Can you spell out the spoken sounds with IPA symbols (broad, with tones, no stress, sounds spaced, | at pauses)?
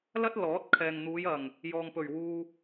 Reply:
l ɐ˥ t̚ l ɔː˨˥ t̚ kʰ ɛː˨ ŋ n̪ uː˨˧ j ɐ˨˩ ŋ | j ɔː˨ ŋ p ɵ˨˩ ɥ w uː˧